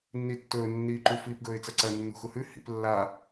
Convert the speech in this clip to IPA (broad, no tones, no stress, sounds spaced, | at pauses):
nː i tː ɵː nː iː ǃ u f iː p ɡ ɵː ɪ̯ t͡s ɐ ǀ ɐ nː ṳ x u h ʉ h ḭ p lː a